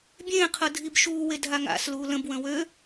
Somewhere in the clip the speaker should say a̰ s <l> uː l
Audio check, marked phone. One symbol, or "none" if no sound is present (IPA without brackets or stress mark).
l